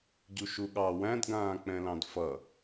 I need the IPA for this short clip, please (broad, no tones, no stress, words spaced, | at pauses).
ɟuʃuɠɑ wæ̃dɡãː k͡pɛ̃lɑ̃dfʌ